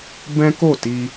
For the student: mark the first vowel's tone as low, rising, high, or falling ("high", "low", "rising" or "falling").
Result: high